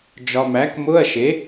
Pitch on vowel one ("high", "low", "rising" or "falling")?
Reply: low